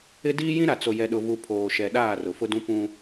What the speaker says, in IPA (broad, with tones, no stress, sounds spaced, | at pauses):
ɪ˦ d iː˦ j ĩ˦ ɾ a˨ t͡s o˨ j ɛ˨ ɗ ʊ˨ v u˨ pʰ oː˨ ʃ ɛ˨ ɗ aː˦˨ r ʊ˨ f ʊ˦ d ũ˦ p ũ˦